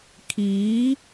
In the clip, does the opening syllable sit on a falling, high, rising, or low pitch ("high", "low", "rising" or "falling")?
rising